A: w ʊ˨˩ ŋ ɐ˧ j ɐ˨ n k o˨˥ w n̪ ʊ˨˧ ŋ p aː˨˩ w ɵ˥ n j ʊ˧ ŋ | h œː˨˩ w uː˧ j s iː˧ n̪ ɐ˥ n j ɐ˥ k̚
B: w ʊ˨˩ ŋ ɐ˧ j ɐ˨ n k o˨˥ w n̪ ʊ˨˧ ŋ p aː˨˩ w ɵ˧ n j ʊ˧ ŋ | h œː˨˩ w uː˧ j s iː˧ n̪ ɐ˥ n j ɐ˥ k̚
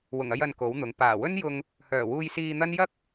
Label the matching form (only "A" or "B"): A